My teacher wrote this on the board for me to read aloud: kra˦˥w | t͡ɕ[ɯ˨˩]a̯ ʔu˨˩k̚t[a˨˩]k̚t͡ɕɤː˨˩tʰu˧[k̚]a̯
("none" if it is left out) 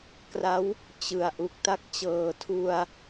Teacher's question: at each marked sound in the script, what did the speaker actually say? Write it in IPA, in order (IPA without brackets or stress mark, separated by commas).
ɯ˨˩, a˦˥, none